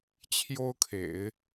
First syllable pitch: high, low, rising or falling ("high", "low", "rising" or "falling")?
high